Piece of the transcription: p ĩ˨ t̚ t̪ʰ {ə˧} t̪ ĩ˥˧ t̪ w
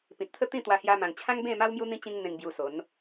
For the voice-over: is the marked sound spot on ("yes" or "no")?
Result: no